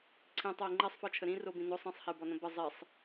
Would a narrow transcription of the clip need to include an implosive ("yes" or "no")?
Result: no